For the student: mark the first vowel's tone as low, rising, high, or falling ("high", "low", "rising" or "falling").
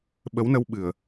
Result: rising